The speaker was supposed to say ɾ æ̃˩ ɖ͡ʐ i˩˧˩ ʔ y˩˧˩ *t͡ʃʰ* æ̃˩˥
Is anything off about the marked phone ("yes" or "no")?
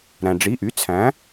yes